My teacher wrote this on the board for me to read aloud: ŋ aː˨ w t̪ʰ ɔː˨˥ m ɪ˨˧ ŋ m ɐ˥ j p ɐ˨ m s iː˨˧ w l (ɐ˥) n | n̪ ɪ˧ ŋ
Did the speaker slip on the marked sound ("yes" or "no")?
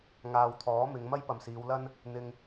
no